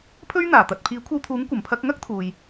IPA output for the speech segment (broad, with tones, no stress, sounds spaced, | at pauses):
pʰ ɵ˥ ɥ n̪ aː˨˩ t̪ ɐ˨ t̚ pʰ iː˨˥ kʷʰ ɐ˧ w t̪ʰ uː˨˥ ŋ kʷ ɐ˨˩ m pʰ ɐ˧ k̚ ŋ ɐ˥ k̚ t̪ʰ uː˨ j